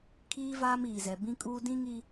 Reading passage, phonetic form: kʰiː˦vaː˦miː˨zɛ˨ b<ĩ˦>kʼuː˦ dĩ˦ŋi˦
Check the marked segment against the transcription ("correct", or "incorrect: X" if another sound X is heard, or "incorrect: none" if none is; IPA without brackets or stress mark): correct